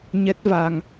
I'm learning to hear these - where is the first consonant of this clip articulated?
palate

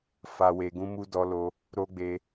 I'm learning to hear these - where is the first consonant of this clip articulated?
lips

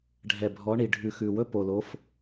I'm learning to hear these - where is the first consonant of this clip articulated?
retroflex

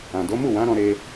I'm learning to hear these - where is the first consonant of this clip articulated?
tongue tip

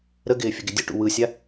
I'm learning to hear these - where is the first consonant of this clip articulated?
tongue tip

